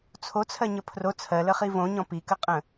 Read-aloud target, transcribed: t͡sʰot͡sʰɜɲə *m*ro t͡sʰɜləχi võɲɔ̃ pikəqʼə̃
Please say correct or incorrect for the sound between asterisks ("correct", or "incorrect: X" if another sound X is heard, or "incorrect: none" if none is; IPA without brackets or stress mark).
incorrect: pʰ